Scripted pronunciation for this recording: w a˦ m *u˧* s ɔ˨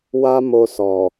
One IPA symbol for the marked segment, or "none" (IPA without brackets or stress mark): o˧